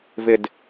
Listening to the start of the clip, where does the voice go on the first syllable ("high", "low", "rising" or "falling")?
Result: falling